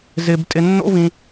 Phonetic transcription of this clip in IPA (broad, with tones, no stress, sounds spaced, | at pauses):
z ɪ˧ b tʼ ɪ˧ nː o̰˦ v ĩ˧